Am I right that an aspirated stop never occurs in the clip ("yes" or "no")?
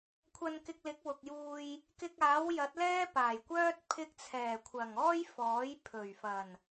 no